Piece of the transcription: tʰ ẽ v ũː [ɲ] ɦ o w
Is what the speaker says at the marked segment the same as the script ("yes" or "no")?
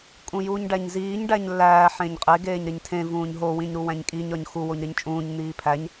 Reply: yes